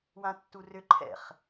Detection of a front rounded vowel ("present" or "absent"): present